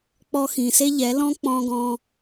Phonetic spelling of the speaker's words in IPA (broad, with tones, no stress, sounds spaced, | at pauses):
k͡p ɔ˧ x ĩ˨ s e˦ ʎ ɛ˨˦ l ɔ̃˦ k͡p ɔ̃˧ ɡ ɔ̃˧